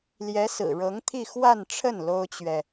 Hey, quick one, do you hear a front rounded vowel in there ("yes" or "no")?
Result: no